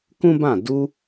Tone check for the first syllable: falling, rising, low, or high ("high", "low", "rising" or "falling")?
high